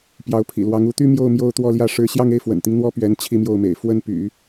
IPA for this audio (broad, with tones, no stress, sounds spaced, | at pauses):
p j ɑ˧˥ ʊ̯ pʰ ḭ˨˩ l w ɑ˧˥ ŋ u˧˥ t̪ y˥ m j o˥˧ ʊ̯ m j o˥˧ ʊ̯ t̪ w ɔ˥˧ l j ä˥˩ ʂ ɻ̩˥ ɕ j ɑ˥˧ ŋ e˥˩ ɪ̯ f w ə̰˨˩ n t̪ i˦ ŋ n̪ w ɔ˥ p ɥ ɛ˧˥ n t͡ɕʰ i˥˧ m j o˥˩ ʊ̯ m ḛ˨˩ ɪ̯ f w ə˥˩ n p y̰˨˩˦